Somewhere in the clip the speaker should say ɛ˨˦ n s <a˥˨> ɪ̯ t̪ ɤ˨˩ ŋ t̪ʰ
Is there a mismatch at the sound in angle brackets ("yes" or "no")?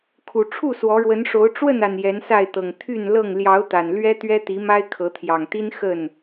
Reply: no